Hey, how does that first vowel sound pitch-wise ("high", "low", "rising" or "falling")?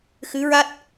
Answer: rising